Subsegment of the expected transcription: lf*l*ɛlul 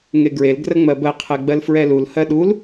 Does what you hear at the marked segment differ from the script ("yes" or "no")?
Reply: yes